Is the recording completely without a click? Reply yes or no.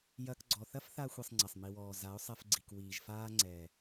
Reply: no